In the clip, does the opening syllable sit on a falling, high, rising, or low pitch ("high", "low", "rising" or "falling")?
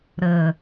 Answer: low